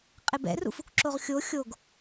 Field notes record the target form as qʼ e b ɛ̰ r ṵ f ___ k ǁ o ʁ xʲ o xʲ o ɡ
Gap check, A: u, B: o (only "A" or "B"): A